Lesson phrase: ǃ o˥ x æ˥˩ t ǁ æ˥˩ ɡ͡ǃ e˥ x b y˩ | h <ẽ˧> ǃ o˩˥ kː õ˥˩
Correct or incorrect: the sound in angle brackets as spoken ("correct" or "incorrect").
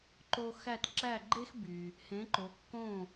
incorrect